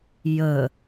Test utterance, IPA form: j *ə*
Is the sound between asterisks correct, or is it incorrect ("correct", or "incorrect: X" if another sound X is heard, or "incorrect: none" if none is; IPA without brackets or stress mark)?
correct